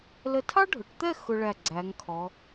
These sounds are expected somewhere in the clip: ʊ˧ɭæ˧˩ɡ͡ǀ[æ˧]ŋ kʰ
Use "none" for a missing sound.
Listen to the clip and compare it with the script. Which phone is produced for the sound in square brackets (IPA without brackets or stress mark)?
æ˩˧